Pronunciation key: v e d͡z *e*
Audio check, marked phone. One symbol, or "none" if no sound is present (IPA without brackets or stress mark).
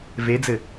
ɘ